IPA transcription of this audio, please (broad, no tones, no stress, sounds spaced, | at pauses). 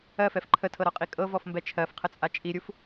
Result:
ɜ f ɛ f ǃʰ ə tʰ ɤ ɾ ɔ qʼ i kʼ ɤ v ɔ f m b ɛ t͡ʃʰ ɜ f qʰ ə t͡sʼ a t͡ʃʼ i ɾʲ u f